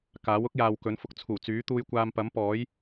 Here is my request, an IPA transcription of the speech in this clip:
k aː˨˥ w ʊ˥ k̚ j aː˨ w k ɵ˨˥ n f ʊ˧ k̚ t͡sʰ uː˨˩ t͡s yː˨˥ t̪ uː˧ j kʷ aː˧ m p ɐ˨˥ m p ɔː˨˥ j

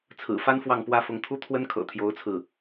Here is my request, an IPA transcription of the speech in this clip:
t͡sʰ ɹ̩˨˩ f a˥ n f w ɑ˥˩ ŋ p w ä˥ f ʊ˧˥ ŋ t̪ʰ u˥ t̪ʰ w ə˥ n kʰ ɤ̰˨˩ t̪ʰ j o˧˥ ʊ̯ t͡sʰ ɹ̩˥˩

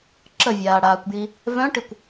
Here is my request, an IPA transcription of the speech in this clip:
ǁ ə vʲ aː ɽ aː kʷ b j i | v œ̃ ʈ i kʷ

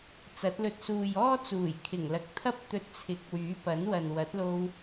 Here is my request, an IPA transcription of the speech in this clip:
t͡s ɐ˨˥ t̚ l ɵ˧ t̚ s uː˨ j ɔː˥ t͡s uː˨˩ j kʰ ɪ˨˩ ŋ l ɐ˨ k̚ t̪ʰ ɐ˥ p̚ t̪ ɵ˧ t̚ t͡sʰ ɪ˨˥ k̚ w yː˨˥ p ɐ˨˥ n w ɐ˨ n w ɐ˨˥ t̚ l o˧ w

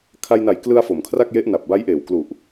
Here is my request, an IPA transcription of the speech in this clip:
kʰ a˧ j n a˨˩ j k l ɯ˧ a̯ f o˩˦ m kʰ r a˥˩ k̚ j e˦˥ ʔ n a˨˩ p̚ b a˦˥ j ʔ eː˨˩ w k l u˨˩ ʔ

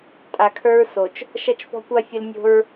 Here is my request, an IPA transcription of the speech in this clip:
tʼ a˨ kʰ ə˞˦ ɹ s o˨ t͡ʃ | ʃ ɐ˦ t͡ʃ f ɔ̤˦ kʷ a˦ fʲ ə˦ l nʲ o̤˦ ɹ

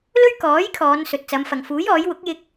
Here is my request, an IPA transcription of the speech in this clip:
l ɵ˥ ɥ k ɔː˨˥ j kʰ ɔː˨˧ n s ɵ˨ t̚ t͡s ɐ˨˧ m f ɐ˨ ŋ f uː˨˥ j ɔː˨˥ j w ʊ˨˥ k̚ j ɪ˧ k̚

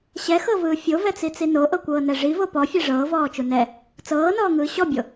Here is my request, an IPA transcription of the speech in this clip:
ɕ ɛ x ɤ v ɯː fʲ o v ɛ t͡s i t͡s i n o ʔ ɤ kʷ ɤː n ɛ ʐ i v o p ɔ fʲ e ʐ ɤː v ɔː t͡ʃ u n ɛ | t͡s ɤː n ɔː ŋ ɯː ɕ ɔ bʲ o

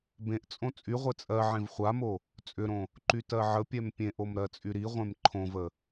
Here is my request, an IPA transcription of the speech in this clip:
b ẽ ʔ t͡sʼ õ t͡sʼ y ʁʷ e t͡sʼ ɜ ʕ ẽ v χʷ a m o | t͡sʼ ʏ ɾ õ | ǃ y t ɜ ʕ ə pʲ ɛ m pʲ ẽ ʔ o m ɾ ɜ t͡sʼ y ɾ i ʁʷ ẽ m ǃʰ õ v ə

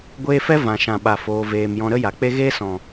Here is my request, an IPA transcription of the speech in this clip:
ɡʷ eː˧ f ɛ˦ v ã˨ ʃ ã˨ ɓ a˨ f oː˧ v eː˧ m j ɔ̃˦ ɾ ə˦ j a˨ k͡p e˦ ɣ eː˦ s ɔ̃˨

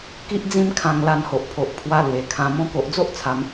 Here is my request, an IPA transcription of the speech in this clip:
k i˦ ʔ d͡z ĩ˦ m kʰ ã˧ ŋ l a˧ n h o˨ ʔ pʰ o˨ ʔ pʰ w a˧ l w e˨˩ kʰ ã˨˩ m ɔ̃˧ k o˨ ʔ d͡z o˦ ʔ t͡sʰ a˧ m

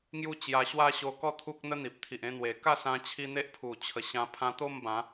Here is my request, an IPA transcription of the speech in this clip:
ŋ j u˥˧ t͡ɕ j a˧ ɕ w a˥˧ ɕ o˧ k ɔ˥˧ t̪ʰ u˦ k̚ n̪ ə˦ n̪ i˨ p̚ t̪ʰ i˨ ʔ ẽ˧ n̪ w e˨˩ k a˥˧ s ã˧ t͡ɕʰ i˧ n̪ e˦ ʔ pʰ u˨˩ t͡ɕʰ ə˨˩ ɕ ã˧ pʰ ã˧ t̪ o˥˧ m b ã˨˦

